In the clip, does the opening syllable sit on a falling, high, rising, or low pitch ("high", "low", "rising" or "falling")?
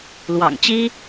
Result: low